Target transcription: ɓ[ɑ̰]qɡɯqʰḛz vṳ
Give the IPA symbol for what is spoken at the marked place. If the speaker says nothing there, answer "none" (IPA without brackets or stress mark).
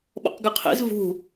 ɔ̰